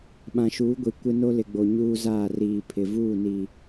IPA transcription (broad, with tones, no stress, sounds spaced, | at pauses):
ɓ ã˨ ʃ uː˨˦ ɡʷ i˨ kʷ ɪ˦ n o˦ l ɪ˨ ɡ͡b o˨ ɲ uː˦ z aː˦˨ r iː˨ pʰ ɪ˨ v uː˦˨ n i˨